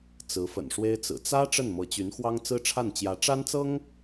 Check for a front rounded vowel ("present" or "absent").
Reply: present